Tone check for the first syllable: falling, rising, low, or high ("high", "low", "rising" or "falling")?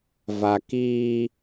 low